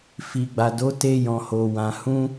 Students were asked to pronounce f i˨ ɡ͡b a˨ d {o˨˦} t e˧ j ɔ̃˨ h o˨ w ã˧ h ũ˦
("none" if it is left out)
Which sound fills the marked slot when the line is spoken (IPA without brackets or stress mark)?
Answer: o˨˦